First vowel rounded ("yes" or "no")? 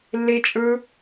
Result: no